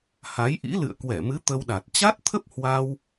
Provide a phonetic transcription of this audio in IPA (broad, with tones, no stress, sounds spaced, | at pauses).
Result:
h a˨˦ j ʔ ḭ˧˥ l ɨ̰˧˨ ə̯ k w ɛ˧˩ m ɨ˨˦ t̪ ə˧ w ɗ a˨˩ t̚ t͡ɕ a˦˥ t̚ t̪ʰ ə˦˥ p̚ h w a˧ w